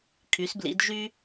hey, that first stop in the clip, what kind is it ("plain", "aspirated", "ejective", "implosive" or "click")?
aspirated